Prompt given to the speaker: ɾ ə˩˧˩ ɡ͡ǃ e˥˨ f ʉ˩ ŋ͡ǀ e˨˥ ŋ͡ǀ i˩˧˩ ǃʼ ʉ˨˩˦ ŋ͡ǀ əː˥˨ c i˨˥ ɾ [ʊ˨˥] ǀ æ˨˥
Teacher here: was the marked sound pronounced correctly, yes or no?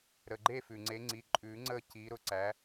yes